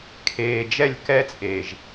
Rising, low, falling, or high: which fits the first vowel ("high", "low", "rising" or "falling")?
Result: low